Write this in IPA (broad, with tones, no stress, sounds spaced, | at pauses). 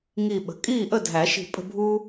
ŋ i˧˩ ɓ ə̤˩ kʼ iː˥˨ ʔ ə˥˨ dʱ æ˨˩˦ ʃ i̤˧˩ pʼ ə̤˥˨ bʱ uː˦